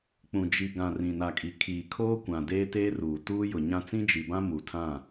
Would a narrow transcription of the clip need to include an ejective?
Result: yes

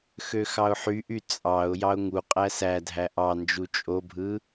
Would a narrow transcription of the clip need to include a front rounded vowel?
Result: yes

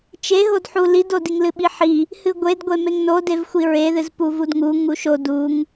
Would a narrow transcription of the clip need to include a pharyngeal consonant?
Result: yes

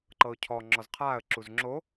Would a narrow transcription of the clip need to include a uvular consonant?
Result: yes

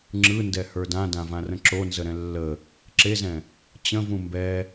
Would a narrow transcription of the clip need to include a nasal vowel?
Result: yes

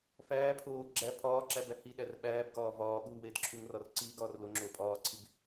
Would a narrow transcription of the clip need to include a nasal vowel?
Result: no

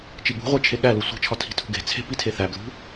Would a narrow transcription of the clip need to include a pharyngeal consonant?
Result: no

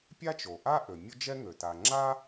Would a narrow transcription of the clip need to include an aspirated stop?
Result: no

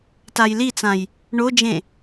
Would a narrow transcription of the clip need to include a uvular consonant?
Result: no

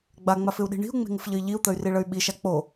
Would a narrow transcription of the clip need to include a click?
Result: no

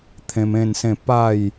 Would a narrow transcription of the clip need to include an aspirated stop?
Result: yes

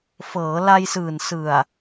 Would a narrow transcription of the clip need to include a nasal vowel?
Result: no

